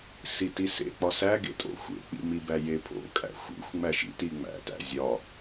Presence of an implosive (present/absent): absent